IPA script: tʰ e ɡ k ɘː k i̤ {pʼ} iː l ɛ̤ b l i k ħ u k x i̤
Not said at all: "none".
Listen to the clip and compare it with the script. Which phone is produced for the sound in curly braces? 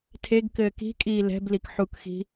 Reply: kʼ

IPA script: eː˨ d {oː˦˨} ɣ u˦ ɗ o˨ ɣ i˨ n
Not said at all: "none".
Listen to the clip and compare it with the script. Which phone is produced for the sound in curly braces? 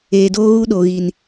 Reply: oː˦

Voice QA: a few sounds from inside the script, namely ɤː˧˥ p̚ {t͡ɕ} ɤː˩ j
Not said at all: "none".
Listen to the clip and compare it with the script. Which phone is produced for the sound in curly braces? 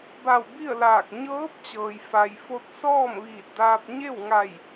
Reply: t͡ɕ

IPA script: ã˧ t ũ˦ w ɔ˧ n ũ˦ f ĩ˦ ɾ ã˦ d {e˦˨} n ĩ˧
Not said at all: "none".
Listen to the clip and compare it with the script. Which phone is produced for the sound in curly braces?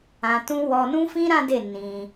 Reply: e˦˨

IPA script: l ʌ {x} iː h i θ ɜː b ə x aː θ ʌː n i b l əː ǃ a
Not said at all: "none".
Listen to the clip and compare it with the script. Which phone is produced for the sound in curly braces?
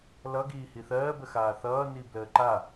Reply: ɡ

